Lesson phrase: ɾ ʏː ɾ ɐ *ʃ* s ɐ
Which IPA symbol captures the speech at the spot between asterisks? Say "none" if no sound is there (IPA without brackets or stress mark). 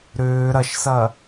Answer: ʃ